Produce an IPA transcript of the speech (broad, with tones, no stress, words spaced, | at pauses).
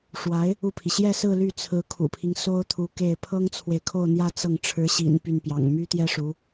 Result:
ʂwa˧˥ɪ̯ | u˥˩pʰi˩ ɕjɛ˥˧sɹ̩˥˧ ly˥˩t͡sʰɹ̩˧˥kʰṵ˨˩pʰi˦ŋ so˥ʊ̯t̪ʰu˧˥ ke˥˩ɪ̯ pʰɤ˥ŋt͡sʰwe˨ɪ̯kʰo˥˧ʊ̯n̪jä˥˧ t͡sɤ˥˩ŋ ʈ͡ʂʰɻ̩˧˥ɕḭ˨˩n py˥˩npjɑ̰˨˩ŋ my˥t̪jɛ˥ ʂu˧˥